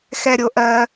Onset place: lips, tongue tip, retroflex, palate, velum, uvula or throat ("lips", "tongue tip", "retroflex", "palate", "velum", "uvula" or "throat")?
velum